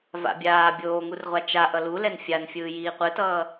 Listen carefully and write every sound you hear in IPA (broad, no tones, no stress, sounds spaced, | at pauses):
v a̰ bʲ aː bʲ oː ŋ u r ʁʷ a t͡ʃ a ʔ ʌ l u l ɛ n fʲ a n fʲ ɯː j iː qʷ ɯ t ʌː